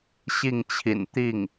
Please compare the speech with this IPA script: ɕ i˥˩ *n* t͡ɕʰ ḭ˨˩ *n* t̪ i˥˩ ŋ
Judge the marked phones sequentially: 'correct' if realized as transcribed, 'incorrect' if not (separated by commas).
incorrect, correct